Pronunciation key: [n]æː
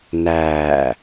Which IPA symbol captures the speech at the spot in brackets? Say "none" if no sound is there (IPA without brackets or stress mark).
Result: n